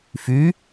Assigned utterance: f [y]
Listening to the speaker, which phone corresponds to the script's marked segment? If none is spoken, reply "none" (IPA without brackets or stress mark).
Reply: y